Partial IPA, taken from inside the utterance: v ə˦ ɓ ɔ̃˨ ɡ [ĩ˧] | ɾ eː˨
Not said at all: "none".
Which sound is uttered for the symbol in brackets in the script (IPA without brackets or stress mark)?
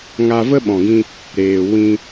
ĩ˧